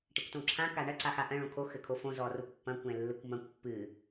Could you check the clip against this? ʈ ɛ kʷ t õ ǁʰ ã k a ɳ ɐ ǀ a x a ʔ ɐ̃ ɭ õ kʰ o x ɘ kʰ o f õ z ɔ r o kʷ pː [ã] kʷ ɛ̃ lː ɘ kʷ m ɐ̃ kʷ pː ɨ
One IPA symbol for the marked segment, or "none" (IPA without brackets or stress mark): ɐ̃